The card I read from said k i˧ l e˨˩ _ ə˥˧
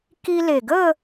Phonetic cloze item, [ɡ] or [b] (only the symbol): ɡ